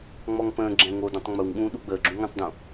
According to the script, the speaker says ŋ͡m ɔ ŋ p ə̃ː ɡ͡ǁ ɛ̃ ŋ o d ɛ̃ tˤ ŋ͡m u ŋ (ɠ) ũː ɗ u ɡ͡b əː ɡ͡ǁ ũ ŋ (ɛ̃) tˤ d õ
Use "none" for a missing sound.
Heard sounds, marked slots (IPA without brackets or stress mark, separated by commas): ɠ, ə̃